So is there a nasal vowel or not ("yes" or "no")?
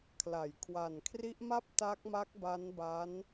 no